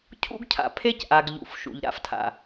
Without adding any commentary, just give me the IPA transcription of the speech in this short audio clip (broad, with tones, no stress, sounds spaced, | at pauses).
cʰ ṵ˦ ɡ cʰ a̰˨ pʰ e˦ c ʔ a˨ ɡ ʎ ṵ˨ f ʃ ṵ˨ ʎ ɾ a̰˦ f tʰ a̰˨